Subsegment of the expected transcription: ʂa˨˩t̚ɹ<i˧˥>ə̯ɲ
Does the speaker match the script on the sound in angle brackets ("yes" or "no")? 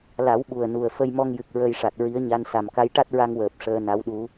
yes